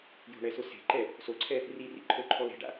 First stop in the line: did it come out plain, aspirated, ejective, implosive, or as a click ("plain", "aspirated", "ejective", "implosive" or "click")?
click